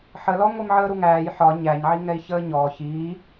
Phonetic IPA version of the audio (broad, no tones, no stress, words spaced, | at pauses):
ħəlɔ ŋʷimʕəːɾuŋæːj ħɒ ɲæɲʕiŋɛi̯çəː ɲɔː çiː